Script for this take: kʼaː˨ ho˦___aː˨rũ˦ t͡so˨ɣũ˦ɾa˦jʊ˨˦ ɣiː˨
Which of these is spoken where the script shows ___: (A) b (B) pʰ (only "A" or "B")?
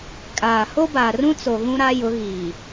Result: A